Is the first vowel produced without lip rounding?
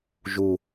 no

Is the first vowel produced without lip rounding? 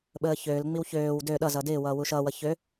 yes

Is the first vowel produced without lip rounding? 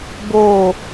no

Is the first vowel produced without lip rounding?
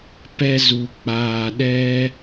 yes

